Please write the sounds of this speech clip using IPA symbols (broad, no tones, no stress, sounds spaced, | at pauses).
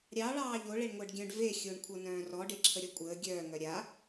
ɾʲ ɑ ɭ ɑː ʎ o ɭ e ɳ ŋʷ əː ɖ ɡʲ œ̃ ɖ v e xʲ o ɳ kʷʰ ɤ n œ̃ː r ɔ ɖ e ǁʰ ə ɾʲ ɔ kʷʼ əː ɡʲ œː ŋ œ ɾʲ a